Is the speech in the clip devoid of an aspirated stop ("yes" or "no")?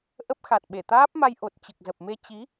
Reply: yes